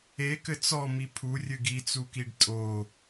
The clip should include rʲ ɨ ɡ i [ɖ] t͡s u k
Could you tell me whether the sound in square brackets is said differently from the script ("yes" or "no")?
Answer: yes